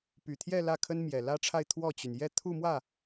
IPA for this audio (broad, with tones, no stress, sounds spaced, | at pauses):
p y˨˩ t̪ʰ j ɛ˥˧ l ä˥˩ kʰ ə˥ n m j ɛ˨˩ l ä˥ ʈ͡ʂʰ a˥˧ ɪ̯ t̪ʰ w ɔ˥˩ t͡ɕ y˩ n j ɛ˥˧ t̪ʰ u˥˧ m w ä˥˩